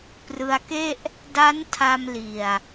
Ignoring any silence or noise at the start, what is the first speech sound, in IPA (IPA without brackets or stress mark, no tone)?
p